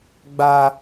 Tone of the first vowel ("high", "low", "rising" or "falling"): low